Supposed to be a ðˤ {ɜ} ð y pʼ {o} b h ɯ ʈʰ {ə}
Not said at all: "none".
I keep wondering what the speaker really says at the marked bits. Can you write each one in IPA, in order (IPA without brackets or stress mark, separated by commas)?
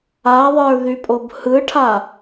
ə˞, o, a